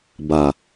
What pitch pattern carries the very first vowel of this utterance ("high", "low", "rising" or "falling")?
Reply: low